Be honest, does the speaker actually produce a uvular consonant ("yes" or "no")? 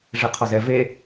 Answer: yes